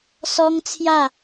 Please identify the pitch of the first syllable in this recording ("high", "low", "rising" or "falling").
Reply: high